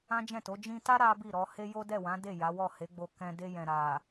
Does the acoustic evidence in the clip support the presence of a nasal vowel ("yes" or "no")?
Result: yes